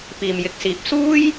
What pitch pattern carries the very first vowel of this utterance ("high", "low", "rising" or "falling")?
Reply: low